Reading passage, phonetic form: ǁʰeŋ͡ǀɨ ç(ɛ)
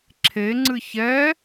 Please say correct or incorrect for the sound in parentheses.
correct